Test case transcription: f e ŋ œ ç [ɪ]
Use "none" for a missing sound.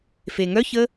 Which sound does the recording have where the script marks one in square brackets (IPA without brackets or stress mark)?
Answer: ə